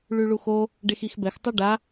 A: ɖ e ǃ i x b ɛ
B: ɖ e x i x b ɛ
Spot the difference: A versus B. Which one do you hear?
B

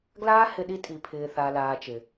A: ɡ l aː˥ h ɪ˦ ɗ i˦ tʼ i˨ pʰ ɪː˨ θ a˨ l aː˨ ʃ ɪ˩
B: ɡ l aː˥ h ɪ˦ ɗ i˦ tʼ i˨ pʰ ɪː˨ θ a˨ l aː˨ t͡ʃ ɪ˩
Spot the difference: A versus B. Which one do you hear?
B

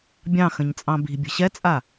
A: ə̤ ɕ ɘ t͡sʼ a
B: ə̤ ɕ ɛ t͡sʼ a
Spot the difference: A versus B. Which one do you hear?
B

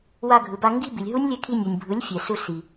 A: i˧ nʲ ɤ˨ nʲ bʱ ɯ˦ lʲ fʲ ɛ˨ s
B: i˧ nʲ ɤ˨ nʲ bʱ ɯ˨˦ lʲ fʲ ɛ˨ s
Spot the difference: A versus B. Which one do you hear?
B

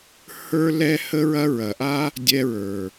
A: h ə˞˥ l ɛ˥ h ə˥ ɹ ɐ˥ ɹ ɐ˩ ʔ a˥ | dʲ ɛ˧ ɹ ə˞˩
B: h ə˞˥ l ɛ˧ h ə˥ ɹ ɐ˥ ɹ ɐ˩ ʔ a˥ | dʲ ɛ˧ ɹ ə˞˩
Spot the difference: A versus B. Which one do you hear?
A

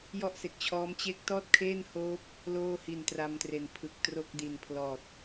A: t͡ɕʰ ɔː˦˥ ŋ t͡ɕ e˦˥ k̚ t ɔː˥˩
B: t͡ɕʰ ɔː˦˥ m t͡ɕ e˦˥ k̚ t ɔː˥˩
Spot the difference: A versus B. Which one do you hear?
B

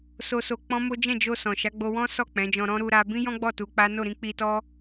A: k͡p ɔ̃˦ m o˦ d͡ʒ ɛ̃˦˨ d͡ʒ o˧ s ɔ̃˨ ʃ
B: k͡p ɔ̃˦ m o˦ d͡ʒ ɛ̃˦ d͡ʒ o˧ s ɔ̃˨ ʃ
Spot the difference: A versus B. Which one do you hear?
A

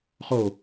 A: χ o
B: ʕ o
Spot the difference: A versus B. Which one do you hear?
A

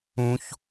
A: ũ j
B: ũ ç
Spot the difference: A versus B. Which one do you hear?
B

